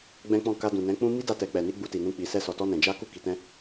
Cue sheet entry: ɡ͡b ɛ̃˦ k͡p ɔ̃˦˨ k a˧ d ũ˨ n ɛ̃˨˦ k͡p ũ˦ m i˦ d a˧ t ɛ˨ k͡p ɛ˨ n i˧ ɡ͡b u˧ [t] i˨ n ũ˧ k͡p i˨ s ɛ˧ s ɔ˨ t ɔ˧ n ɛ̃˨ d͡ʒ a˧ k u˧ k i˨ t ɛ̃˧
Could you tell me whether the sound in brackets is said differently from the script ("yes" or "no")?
no